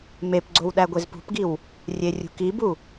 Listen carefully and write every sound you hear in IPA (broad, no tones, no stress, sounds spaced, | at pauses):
m e p ɡ͡ǀ o w ɗ æ ɡʷ e z p ṳ p ɡ i w | rʲ e rʲ ṳ k i b u